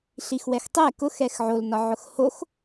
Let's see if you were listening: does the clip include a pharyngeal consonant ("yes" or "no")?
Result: yes